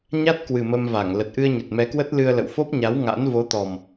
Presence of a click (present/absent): absent